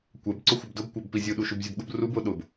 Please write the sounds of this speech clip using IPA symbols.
kʷ ɛ b ǀ ʊ xʷ ə b d ʊ b kʷ ɑ b p i zʲ u ɗ u ʃ u b zʲ ə b ɠ ʊ b r u b ʊ ɗ ʊ b

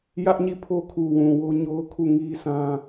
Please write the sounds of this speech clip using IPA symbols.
j ä˦ ʔ ɲ i˦˨ pʰ o˦ kʰ u˨ w ũ˨ w o˦ ɲ o˦ ʊ̯ kʰ u˦˨ ŋ i˦ sʰ ã˦

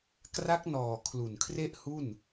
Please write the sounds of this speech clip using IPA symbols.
k r a˦˥ k̚ n ɔː˨˩ kʰ l u˨˩ n kʰ r e˥˩ ʔ h u˥˩ n

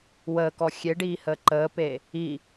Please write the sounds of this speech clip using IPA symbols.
w əː k ɔ xʲ e ɖ iː h əː ǃ əː p eː | i

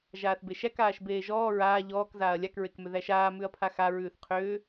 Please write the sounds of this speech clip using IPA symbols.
ʒ aː θ b e ʃ æ k aː ʃ b eː ʒ ɔː ɹ aː ʎ ɔː k z aː ɐ̯ lʲ a k ɹ e k m ʏ ð æ ʃ aː m ʉ ɐ̯ pʰ a x a ɹ ʉː θ qʰ ʏː

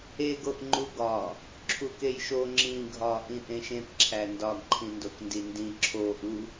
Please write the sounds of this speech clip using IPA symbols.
e ɡ o ʔ ŋ͡ǃ u ɡ ɒ | ǁʰ u k e j ʃ o ŋ͡ǁ ĩ ɡʱ ɒ ʔ ĩ ʔ ẽ ʃ ẽ p ǁʰ æ n d ɒ ɡ ǃʰ ĩ n d o k n d i n d ĩ ǁʰ o ʔ u

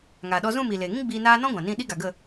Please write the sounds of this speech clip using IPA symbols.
ŋ aː˨ ɗ ɔ˧ z ũ˦˨ m iː˨ l eː˨ ŋ ĩ˦ ɡ͡b iː˧ n aː˦ n ɔ̃˦ ɡʷ ã˨ n ĩ˦˨ ɗ i˦ ɡ a˨ ɡ ə˦˨

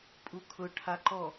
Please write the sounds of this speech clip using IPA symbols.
pʼ u kʰ ʊ ʈʰ a ǃ ɔ

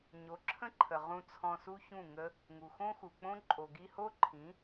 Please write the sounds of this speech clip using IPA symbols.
ɲ o˨˦ ǁʰ ə̃˦ ǃʰ ə˨ ʁ ũ˧ t͡sʰ ɔ̃˧ s u˦ ç ũ˦˨ ŋ ə˦ | ŋ u˨ x õ˦ x u˨ k͡p õ˦ ǃʼ o˨ ɡ i˧ h o˦ ǃʰ ĩ˨˦

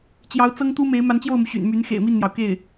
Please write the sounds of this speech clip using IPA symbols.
t͡ɕ j ɑ˧˥ ʊ̯ t͡s ɤ˥ ŋ t̪ u˥ m e˧˥ ɪ̯ m a˧˥ n t͡ɕ j o˥˩ ʊ̯ m u˩ ɕ y̰˨˩ n m y˧˥ n x ḛ˨˩ ɪ̯ m i˥˩ n n̪ j ɑ˩ ʊ̯ k e˥˩ ɪ̯

